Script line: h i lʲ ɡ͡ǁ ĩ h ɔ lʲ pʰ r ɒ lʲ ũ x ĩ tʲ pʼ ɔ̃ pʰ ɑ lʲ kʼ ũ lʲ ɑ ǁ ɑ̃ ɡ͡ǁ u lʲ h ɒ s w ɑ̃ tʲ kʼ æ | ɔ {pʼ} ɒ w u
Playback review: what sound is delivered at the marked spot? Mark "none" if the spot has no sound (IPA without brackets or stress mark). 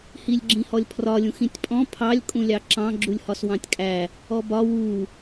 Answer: b